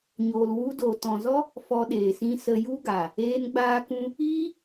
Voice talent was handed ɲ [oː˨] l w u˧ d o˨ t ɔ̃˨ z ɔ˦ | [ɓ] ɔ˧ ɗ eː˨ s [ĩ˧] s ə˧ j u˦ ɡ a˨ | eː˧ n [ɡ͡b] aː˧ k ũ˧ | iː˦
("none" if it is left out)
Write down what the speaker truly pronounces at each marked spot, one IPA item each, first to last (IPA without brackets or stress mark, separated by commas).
oː˨, f, ĩ˦, ɡ͡b